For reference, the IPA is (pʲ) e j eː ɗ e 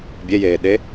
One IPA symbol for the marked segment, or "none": bʲ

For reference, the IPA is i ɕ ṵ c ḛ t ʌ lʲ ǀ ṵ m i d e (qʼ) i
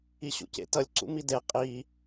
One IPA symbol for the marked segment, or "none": qʼ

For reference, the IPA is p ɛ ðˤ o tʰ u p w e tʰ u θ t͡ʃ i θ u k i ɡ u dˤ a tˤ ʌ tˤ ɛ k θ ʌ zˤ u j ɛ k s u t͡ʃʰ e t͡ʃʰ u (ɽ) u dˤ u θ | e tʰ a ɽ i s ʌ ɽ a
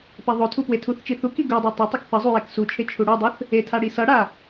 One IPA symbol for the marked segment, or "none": ɽ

